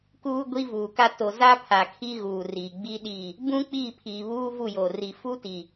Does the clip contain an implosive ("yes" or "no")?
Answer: yes